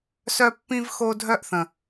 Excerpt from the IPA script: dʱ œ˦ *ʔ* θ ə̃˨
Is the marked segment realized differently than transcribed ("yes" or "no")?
no